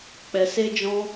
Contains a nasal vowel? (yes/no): yes